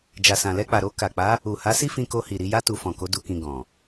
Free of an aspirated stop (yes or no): yes